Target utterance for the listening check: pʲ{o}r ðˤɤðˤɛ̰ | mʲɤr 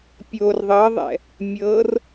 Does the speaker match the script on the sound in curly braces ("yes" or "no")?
yes